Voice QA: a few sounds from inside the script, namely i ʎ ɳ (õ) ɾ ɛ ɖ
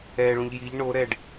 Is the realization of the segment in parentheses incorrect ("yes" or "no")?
yes